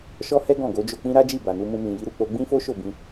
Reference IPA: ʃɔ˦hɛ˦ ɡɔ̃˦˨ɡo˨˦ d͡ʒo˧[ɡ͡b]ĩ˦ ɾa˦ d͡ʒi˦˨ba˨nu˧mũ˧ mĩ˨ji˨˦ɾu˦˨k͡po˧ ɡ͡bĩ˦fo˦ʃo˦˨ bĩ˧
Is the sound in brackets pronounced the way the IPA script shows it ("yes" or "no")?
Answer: no